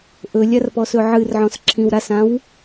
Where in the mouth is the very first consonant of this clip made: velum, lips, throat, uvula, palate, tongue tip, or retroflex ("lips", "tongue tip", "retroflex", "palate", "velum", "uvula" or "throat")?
throat